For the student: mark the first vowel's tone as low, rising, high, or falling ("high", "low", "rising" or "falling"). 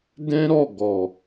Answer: high